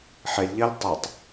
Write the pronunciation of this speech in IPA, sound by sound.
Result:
ħ e lʲ ʎ ɛ lʲ tˤ ɯ tˤ

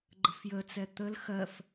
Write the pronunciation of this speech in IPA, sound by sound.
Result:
ɡ͡ǃ ə̤ f j ə t͡s ɛ t̪ ə l x ɜ f

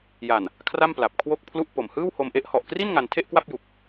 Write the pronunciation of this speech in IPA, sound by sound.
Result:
j a˨˩ n | kʰ r a˥˩ m p l a˨˩ p̚ kʰ w o˥˩ k̚ pʰ l u˥˩ ʔ p o˨˩ m h ɯː˥˩ w h o˧ m ʔ e˦˥ ʔ h ɔ˨˩ ʔ k r i˥˩ n ŋ a˧ n tʰ e˥˩ ʔ k w a˥˩ p̚ j u˨˩ k̚

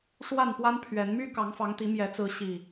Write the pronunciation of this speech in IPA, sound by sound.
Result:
ʂ w a˥˨ n p w a˦ n pʰ ɥ ɛ˨˦ n m y˦ k ɑ˨˦ ŋ f ɑ˨˦ ŋ t̪ i˨˦ m j ɛ˨˦ t͡s ɹ̩˨˦ ɕ i˨˩

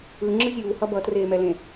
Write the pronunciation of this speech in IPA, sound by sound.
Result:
ɯ ŋ͡ǁ ɯ zʲ uː h ʌ b ʌ t r eː m ɛ l ẽ

